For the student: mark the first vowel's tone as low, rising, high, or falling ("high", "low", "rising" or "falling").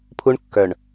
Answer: high